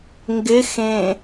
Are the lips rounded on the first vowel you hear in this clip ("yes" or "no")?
no